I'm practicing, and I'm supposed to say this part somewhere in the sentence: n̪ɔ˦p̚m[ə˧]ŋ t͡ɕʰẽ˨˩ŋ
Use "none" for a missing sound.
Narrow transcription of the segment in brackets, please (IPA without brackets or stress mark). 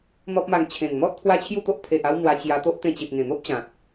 a˧